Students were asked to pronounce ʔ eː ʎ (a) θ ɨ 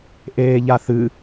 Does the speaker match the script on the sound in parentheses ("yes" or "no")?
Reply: yes